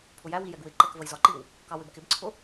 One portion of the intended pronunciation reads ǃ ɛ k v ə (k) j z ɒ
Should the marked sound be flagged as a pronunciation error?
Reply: yes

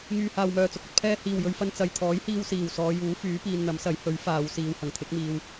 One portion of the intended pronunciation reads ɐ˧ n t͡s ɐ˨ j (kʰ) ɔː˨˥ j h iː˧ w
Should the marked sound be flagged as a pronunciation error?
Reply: yes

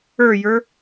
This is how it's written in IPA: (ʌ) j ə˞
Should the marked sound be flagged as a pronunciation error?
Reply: yes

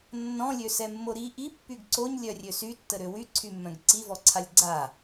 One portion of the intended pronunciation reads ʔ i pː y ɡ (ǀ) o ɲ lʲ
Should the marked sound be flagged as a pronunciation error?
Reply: no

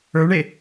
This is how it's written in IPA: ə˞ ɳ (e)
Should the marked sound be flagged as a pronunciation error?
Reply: no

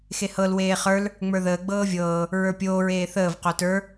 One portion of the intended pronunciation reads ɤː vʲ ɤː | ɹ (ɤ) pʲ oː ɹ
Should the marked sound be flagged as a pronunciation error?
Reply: yes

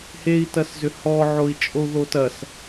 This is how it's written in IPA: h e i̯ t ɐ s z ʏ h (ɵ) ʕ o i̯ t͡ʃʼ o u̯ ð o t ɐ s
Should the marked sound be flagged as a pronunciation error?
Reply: yes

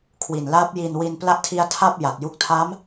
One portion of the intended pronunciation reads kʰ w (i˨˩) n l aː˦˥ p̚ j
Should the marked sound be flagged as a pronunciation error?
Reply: no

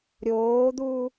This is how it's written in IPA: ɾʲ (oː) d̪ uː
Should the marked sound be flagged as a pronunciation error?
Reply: no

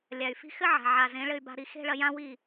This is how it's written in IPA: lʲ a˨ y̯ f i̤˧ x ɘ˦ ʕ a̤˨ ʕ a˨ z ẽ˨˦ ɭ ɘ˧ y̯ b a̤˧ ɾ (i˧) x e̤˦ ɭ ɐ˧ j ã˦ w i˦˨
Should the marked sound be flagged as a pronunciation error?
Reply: no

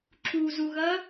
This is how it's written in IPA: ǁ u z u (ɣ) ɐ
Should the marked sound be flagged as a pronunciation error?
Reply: no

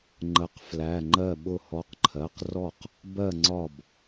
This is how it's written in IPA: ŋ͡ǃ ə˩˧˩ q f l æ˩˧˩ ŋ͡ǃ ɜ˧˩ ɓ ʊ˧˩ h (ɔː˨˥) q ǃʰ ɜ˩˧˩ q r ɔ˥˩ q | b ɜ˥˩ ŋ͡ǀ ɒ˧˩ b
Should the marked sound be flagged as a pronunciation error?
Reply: yes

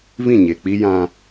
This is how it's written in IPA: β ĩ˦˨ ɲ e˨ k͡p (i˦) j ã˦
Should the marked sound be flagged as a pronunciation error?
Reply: no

